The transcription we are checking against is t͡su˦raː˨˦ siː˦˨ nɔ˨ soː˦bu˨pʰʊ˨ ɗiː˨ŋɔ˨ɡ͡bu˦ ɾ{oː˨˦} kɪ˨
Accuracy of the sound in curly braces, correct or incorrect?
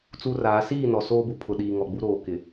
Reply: incorrect